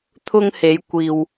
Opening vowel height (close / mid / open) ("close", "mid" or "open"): close